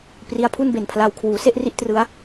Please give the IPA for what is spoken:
pri˦˥a̯pʰu˥˩nbe˨˩npʰla˧w kʰwuː˩˦se˥˩ʔri˥˩ʔ trɯ˦˥a̯

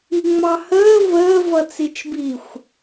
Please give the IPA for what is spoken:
iŋ͡mɑhəː vəːv ʌt͡sit͡ʃbixʷ

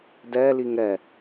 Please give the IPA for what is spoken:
dɛ liŋɾɛ

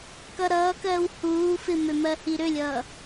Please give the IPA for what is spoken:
kʌɾʌːkɜːw huː fɪmø mɜhiɾølʲʌː

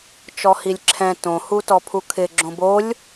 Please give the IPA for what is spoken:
t͡ʃɔhilʲǁʰɛ̃ tõhutɔ pʰukʰɪ ɡ͡ǁõbolʲ

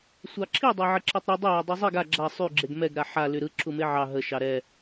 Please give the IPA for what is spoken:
sʷɑǁʰidˤæ ʕəǁetˤɾy dˤəja dˤuzˤiɡ a ɡ͡ǁa sˤy ɡ͡ǁeɡmɛɡɾa ħa lyɾɯ ǁʰumeʕɑ ɦə ʃɑɾɛ

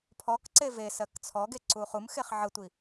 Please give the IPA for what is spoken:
pʰɔk ǀevesɜk t͡sʰɔɡe ǀuχumxeχ ʕətʷi

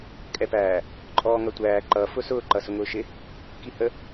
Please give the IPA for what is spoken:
kʼɛpæː | ǃʼɔːŋʌtʷæː ǃʌ fʊsʊː ǃʌsʊŋʊːʃɪ | kihə

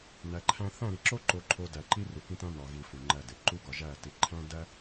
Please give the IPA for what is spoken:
næ˨ǃʰæ̃˦ θæ̃˦˨ɾi˨ ǁo˦ǃo˨ǃʰo˨ dæ˨ǃi˦ ru˨kĩ˦tæ̃˦ nɒ˨ɣi˨ fu˨ŋ͡ǃæ˦˨de˨ ǃu˦ɡɒ˨ʒæ˦˨ ti˨ǃʰæ̃˦ dæ˦

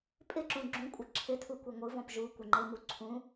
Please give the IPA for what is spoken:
pʼɪǁũ ɡ͡ǁũkʷʼɘ ǁʰɪtʰukʷe ŋʷɯvɔ̃p ʒukʷɪŋ͡ǃemu ǀʰũ

